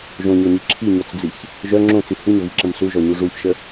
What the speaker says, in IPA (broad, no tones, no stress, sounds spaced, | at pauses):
ʒ õ ɲ ɔ ɲ i ǁʰ i ɲ ɔ t͡s d͡z i ç | ʒ œ ŋ͡ǁ õ t͡s i h u ɲ ə v i ǁ ə̃ m s u ʒ ɔ ɲ u ʐ u ç ʃ ə